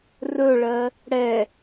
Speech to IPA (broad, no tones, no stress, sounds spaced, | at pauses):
r ɵ ɭ ɜ | ɽ ɛ